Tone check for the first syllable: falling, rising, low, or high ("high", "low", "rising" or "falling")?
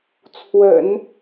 low